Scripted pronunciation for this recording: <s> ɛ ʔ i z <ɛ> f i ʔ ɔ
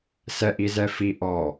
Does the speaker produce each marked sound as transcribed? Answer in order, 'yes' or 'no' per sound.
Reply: yes, yes

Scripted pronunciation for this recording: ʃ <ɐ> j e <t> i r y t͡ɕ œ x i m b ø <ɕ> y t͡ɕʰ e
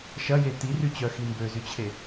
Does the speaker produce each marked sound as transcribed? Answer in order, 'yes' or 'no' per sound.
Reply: yes, yes, no

